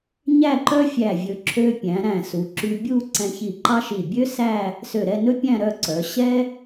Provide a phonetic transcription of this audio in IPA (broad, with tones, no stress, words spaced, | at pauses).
ɲæ˥˧ǃœ˥fʲæ˧˩ vʲɵ˧ ǁʰø˧ pʲæ̃˩˧ɾæ̃˧˩su˩˧ǁy˧ bʲu˥˧ ǀɛ̃˧çi˧˩ǃɑ˥ʃi˧˩ bʲø˥sæ˥˧ | sø˧˩ɾɛ˥˧nɵ˥pʲæ̃˥˧ ɾœ˥˧ǀœ˩˧ ɕɛ˥